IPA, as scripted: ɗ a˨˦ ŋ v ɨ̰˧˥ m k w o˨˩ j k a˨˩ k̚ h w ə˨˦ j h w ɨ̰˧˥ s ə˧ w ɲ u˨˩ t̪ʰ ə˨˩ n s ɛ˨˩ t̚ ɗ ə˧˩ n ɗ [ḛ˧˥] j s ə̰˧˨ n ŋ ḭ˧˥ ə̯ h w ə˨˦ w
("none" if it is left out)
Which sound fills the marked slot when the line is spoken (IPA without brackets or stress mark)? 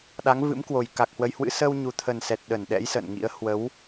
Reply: ɛ̰˧˥